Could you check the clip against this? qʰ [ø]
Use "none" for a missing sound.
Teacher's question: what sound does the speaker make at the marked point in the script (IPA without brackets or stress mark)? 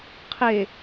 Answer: e